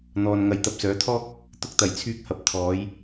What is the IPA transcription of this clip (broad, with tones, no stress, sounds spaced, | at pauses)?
n̪ ɔː˨ n ŋ ɐ˨˧ j t̪ ɐ˨ p̚ s œː˨˥ t̪ʰ ɔː˥ k̚ | t̪ ʊ˧ k̚ t̪ ɐ˨˩ j t͡sʰ yː˧ k̚ h ɐ˨˥ p̚ t̪ʰ ɔː˨˧ j